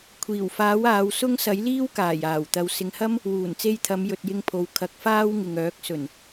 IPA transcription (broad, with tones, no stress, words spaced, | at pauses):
kʷʰiː˨˩wfaː˨˥w aː˨˧w sʊ˥ŋ sɐ˨˥jliː˥wkaː˨˩j aː˨˩wt̪ɐ˨w sɪ˨ŋhɐ˥m | wuː˨˩nt͡se˧jt̪ʰɐ˨˧m jɵ˨t̚jɪ˧ŋpʰo˨w kʰɐ˨˥k̚faː˥wŋɪ˨ŋœː˨˥k̚ sɵ˨˩n